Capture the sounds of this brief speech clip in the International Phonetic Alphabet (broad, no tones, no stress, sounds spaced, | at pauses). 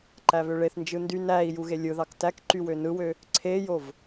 ǃ æ β ø ɭ e θ n d͡ʒ ɯ n d y n æ i̯ j u ɣ e lʲ ɯ ð ɑ k t æ k ǃ y w ø n ɯ w ø | ǀʰ e j o v